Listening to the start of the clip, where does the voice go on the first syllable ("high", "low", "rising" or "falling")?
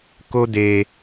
high